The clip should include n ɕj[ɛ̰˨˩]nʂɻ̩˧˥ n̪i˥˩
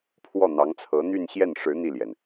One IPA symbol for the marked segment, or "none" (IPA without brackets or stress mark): ɛ˥˩